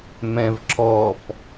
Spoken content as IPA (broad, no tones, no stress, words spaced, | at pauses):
mɛ̃vǁɔp